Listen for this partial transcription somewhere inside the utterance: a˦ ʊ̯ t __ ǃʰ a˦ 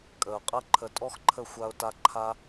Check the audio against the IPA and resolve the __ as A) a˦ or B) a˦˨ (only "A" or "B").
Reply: A